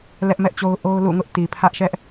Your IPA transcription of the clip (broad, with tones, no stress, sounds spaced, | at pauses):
l ɛ˦ ʔ m ɛ˦ ʔ t͡ɕ o˦ ʊ̯ ʔ o˦ ʊ̯ l ṵ˦˨ ŋ ʊ˦ ʔ t i˨ pʰ ä˦ ʔ ʃ ɛ˦ ʔ